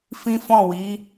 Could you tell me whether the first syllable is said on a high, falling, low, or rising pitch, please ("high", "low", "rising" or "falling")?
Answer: high